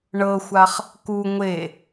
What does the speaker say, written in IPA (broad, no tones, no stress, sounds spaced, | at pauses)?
ɳ ɤ xʷ a χ | k u ŋʷ e